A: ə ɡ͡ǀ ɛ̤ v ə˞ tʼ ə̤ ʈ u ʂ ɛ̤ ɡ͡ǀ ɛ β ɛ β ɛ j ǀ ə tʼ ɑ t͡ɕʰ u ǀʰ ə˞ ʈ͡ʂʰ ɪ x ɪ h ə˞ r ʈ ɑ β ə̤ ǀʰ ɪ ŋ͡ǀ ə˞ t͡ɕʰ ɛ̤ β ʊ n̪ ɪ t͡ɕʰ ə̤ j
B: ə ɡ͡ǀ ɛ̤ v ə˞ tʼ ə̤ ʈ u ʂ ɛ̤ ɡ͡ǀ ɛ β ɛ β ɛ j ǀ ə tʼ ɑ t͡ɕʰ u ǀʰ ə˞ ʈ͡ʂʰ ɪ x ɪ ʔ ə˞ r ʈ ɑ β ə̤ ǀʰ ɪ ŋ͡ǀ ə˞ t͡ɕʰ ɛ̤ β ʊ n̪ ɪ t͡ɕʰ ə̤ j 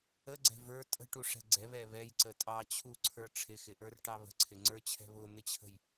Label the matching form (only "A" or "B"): B